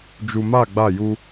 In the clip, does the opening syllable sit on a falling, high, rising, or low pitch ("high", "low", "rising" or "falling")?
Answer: low